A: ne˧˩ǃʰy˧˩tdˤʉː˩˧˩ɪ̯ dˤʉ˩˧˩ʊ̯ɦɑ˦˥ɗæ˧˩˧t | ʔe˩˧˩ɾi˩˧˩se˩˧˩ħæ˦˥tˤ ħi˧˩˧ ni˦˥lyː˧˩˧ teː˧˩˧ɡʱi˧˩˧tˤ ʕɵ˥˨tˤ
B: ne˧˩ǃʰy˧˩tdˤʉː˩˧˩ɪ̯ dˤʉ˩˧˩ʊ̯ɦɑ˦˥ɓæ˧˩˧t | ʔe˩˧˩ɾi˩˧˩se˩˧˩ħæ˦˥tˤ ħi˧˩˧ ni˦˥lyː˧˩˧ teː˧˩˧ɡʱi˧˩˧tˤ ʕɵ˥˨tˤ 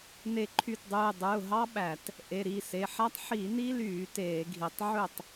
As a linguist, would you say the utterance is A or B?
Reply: B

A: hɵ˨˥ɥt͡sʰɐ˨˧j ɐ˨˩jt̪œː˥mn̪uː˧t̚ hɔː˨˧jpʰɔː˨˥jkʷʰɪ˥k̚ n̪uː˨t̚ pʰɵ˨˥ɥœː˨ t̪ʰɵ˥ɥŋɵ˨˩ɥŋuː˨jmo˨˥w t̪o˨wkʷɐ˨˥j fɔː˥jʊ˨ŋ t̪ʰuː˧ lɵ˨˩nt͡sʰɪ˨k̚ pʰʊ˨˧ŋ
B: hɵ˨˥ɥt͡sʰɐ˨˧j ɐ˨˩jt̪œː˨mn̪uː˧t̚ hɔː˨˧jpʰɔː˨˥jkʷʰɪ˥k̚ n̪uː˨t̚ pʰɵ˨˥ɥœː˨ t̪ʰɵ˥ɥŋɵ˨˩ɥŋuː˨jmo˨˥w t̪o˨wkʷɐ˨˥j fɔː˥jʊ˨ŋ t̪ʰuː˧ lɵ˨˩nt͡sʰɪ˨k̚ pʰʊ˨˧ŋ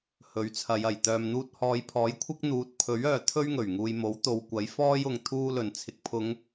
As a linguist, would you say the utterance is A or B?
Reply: B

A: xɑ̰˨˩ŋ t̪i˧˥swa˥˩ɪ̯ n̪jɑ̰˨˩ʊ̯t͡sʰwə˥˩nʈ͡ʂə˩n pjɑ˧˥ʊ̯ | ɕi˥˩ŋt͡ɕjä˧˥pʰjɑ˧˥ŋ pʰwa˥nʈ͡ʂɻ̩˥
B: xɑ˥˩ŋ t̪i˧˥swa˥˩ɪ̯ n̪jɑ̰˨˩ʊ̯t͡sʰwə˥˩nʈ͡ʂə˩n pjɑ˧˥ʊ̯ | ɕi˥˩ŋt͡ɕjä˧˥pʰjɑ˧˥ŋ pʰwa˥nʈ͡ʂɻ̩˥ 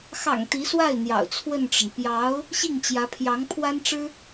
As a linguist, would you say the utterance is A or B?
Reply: A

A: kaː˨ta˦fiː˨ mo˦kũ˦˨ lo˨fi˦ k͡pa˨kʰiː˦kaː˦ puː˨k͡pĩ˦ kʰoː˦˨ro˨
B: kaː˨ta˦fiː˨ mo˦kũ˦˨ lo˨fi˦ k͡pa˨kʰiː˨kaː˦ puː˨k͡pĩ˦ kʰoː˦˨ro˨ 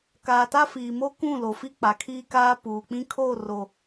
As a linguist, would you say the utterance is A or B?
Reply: A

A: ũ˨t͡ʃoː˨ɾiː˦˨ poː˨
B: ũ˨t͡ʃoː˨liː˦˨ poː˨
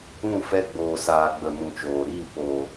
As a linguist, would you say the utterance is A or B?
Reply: A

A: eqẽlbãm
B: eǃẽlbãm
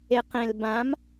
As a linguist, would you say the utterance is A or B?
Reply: A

